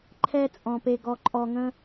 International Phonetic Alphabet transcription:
ǃʰɛ˨t͡sʼɔ̃˩ pe˩ɡɔ˩ǃʼɔ˩ŋə̃˨

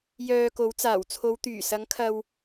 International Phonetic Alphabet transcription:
jœː˧ko˨˥w t͡saː˨˩wt͡sʰo˨˧wt̪yː˨˩ sɐ˨˥ŋkʰɐ˧w

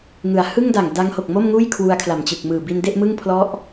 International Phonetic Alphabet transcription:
ŋɯ˩˦a̯hɯ˥˩ŋda˨˩ŋ da˦˥ŋho˨˩k̚mo˥˩mŋuː˥˩j kʰwu˧a̯kʰla˨˩mt͡ɕɯ˨˩k̚mɯː˨˩ bi˧nde˥˩ʔ mɯ˥˩ŋpʰlɔ˦˥ʔ

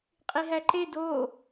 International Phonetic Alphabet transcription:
qʼiɦæǃe do

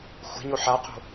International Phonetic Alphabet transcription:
xʷe̤ɲo ħaqo̤

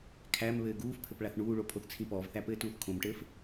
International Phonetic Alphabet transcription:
kʰæm βɘːɡuːfpʰɘp ɭaθɳuːɭo pʰoθt͡sʰĩpɔːvθæ pɘːtuːθkʰõmʈɘːf

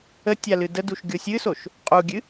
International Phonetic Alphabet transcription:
ətʲa lɨdəduʃ ɡʲosʲɨsoʃ | qʼuɡʲɨ

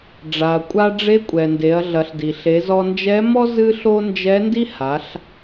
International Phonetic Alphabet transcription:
ɖ͡ʐa˩ɐ̯kʷʼa˧ɖ͡ʐe˧˥kʷʼɛ˩ nde˩˧ɐ̯ɮɐ˩˧ɬ di˩ɬe˩˧zɔ˧ nd͡ʒɛ˧˥mɔ˥ zɨ˥ɬo˥ nd͡ʒɛ˧˥ndi˥ha˩˧ɬ

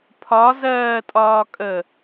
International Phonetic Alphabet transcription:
pʰɒzɜːtʼɒːkʼə

